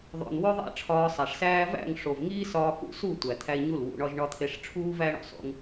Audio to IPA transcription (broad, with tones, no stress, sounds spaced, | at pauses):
ðˤ o̰˨ n w o˦ ðˤ æ̰˦ ʈ͡ʂʰ ɒː˧ sˤ æ˨ ʂ s æː˦ v æ̰˦˨ ŋ ʂ o˨ v ŋ iː˦ s ɒː˧ k ṵ˦ s u˦˨ tʷ æ˨ t̪ʰ æ˧ i̯ ɲ u˦˨ l w ṵ˧ ɳ ɒ˦ ʒ ɳ ɒ˧ t̪ʰ e˧ ʂ ʈ͡ʂʰ uː˦ v æ˦ ɳ o̰˧ sˤ ṵ˦ ŋ